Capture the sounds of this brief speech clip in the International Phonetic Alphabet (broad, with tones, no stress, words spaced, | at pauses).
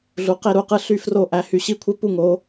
ɮu˨˥qe˥˧ɾu˥˩qɯ˥˧ ɬy˥˧fro˥˩ ʔæ˨˥hy˨˥ɕi˥˧kʷʰe˥˧ pu˥˧ŋo˨˥